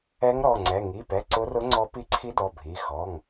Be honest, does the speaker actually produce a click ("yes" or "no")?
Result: yes